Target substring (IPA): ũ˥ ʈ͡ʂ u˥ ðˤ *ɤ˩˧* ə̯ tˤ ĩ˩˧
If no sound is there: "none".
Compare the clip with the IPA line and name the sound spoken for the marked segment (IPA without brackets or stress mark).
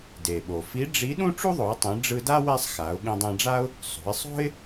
o˩˧